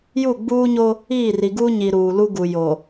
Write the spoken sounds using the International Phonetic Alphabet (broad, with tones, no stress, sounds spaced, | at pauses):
j u˦˨ ɡ͡b uː˦ ɲ o˦ | iː˦˨ r i˨ ɡ uː˦ ɲ i˨ ɾ uː˨ l u˦ ɡ u˨ j o˨